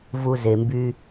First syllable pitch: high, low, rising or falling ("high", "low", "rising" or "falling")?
low